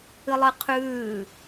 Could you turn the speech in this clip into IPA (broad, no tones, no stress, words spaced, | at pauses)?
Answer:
ɨlˠɨqʰʉː